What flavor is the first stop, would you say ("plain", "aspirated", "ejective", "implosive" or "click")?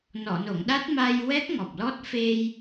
implosive